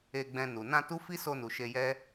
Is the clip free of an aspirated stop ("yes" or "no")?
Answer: yes